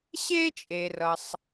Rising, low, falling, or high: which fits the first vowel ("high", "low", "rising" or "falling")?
high